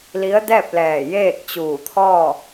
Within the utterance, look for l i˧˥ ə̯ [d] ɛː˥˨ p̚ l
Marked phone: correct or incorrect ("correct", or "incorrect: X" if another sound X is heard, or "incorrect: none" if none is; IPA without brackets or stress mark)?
correct